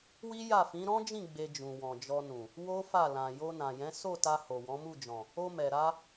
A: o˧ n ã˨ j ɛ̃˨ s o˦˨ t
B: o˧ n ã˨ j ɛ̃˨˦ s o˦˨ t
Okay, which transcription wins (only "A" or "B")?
B